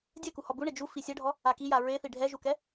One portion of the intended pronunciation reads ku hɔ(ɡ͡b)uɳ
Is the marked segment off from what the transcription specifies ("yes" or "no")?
yes